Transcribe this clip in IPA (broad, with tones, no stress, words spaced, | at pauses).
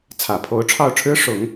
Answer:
t͡sʰä˨˩pʰo˧˥ʊ̯ʈ͡ʂʰɑ˥˩ʊ̯ʈ͡ʂʰɻ̩˥ ʂʊ˨˩˦ŋ